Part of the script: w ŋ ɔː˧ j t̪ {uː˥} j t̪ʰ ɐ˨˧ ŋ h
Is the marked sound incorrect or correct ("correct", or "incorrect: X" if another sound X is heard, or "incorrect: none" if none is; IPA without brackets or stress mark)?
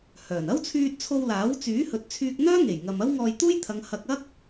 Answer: correct